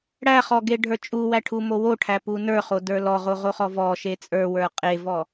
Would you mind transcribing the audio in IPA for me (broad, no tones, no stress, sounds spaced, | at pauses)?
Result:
ɽ æ χ ɔ ɡ e ɖʱ ə˞ t͡ʃʼ u w æ ʈʰ u m o w o ʈʰ æ p u n ə˞ χ o d ə˞ l ɔ ʁ o ʁ o χ ɔ v ɔ ʃ e t͡sʼ ə˞ w ə˞ qʼ e v ɔ